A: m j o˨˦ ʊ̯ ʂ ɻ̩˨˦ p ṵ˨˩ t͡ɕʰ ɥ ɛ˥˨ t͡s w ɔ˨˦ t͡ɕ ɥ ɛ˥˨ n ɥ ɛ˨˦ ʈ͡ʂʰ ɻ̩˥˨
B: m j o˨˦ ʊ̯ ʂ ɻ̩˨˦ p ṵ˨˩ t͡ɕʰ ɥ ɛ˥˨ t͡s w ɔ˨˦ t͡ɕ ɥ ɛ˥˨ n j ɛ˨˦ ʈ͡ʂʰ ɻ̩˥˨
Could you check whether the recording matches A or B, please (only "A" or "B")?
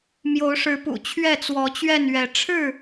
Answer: A